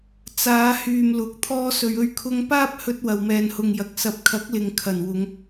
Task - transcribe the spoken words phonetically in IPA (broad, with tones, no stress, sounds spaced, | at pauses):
t͡s aː˨˧ h yː˨ m l ʊ˨˥ k̚ t̪ʰ ɔː˧ s ɵ˨ ɥ ɵ˧ ɥ kʰ ʊ˧ ŋ p aː˥ p̚ h ɵ˧ t̚ w ɐ˨ w m ɛː˨ n h ʊ˨ ŋ j ɐ˨ k̚ s ɐ˨˥ p̚ kʰ ɐ˨˥ k̚ l ɪ˨ ŋ kʰ ɐ˨˩ n w ʊ˨˧ ŋ